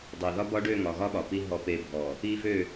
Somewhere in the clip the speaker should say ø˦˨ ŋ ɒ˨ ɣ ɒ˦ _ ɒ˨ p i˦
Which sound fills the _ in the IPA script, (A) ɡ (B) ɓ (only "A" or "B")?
B